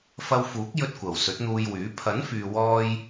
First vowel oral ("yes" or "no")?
yes